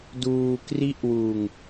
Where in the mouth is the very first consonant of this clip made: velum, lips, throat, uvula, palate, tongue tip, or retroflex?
tongue tip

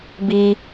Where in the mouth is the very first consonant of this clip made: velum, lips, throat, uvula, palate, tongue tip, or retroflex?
lips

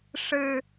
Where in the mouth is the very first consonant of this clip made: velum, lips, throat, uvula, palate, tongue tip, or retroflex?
retroflex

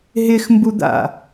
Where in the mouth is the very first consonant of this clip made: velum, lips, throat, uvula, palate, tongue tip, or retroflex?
throat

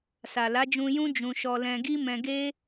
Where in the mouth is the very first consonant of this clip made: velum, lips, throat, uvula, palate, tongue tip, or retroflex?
tongue tip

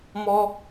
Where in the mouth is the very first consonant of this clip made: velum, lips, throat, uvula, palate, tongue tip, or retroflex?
lips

